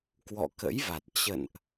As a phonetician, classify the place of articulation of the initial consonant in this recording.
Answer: velar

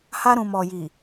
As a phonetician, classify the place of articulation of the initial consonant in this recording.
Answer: glottal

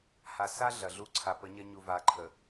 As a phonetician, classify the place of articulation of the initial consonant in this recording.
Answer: glottal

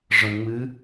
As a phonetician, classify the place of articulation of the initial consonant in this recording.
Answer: retroflex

